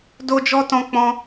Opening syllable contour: high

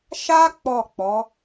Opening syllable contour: high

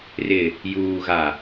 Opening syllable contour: low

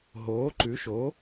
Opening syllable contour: rising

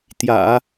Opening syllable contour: low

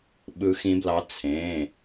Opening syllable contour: rising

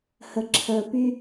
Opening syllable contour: low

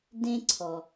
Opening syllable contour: high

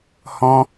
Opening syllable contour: high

